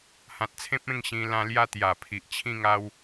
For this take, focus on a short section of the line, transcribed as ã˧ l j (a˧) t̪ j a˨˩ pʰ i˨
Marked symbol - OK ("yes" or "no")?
no